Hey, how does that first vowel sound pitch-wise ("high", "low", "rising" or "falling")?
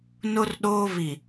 high